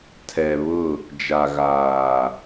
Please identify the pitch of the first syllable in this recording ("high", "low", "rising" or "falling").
low